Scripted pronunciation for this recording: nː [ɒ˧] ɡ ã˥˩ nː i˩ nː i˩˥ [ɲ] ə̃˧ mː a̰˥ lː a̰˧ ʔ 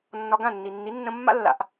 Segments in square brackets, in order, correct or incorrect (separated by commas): correct, incorrect